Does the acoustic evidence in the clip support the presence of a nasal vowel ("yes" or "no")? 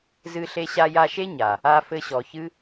no